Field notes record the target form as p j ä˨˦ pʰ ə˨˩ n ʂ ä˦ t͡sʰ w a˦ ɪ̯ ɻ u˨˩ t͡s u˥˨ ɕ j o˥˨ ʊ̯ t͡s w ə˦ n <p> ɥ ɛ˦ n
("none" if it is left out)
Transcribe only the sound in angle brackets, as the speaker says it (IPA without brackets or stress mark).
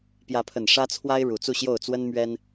m